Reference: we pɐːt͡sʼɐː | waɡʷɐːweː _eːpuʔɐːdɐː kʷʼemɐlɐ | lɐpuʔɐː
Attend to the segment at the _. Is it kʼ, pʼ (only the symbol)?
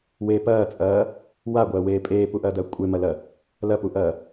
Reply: pʼ